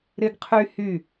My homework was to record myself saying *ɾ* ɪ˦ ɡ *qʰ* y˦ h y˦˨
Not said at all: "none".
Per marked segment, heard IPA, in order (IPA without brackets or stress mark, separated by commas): ɾ, qʰ